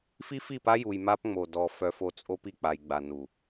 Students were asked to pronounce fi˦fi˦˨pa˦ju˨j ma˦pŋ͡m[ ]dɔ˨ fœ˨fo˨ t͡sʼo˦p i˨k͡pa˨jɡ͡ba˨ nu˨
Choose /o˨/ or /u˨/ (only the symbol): o˨